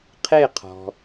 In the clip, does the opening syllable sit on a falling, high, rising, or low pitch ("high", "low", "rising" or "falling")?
falling